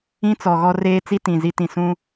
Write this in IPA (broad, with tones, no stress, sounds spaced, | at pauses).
ĩ˦ t͡s ɔ˨ ɣ ɔ˦ r eː˦ t͡s i˦ t ĩ˨ z i˦ t ĩ˨ s ũ˦